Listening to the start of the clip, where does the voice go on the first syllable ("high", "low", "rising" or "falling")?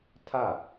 falling